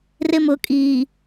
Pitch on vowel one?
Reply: high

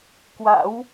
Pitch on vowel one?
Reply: rising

